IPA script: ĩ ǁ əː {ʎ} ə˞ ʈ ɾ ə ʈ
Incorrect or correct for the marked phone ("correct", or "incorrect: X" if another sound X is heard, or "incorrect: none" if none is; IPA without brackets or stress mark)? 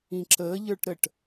correct